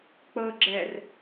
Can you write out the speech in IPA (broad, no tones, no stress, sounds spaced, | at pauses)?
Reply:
k͡p ɤ ɡ͡ǁ ɛ r